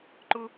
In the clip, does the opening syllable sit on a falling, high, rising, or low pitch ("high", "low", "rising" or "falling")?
high